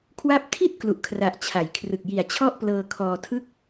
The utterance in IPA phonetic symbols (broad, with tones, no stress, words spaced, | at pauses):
kʰwa˦˥p̚ tʰi˥˩t̚ klu˨˩ʔkʰra˨˩ʔ t͡ɕʰa˩˦jkʰrɯ˨˩k̚ ji˨˩a̯t͡ɕʰɔ˥˩ʔplɤː˧kʰɔː˧ tʰɯ˦˥k̚